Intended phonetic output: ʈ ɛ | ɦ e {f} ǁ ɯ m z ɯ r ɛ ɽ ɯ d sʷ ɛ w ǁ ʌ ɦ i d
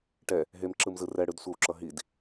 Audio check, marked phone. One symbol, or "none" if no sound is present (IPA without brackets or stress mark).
m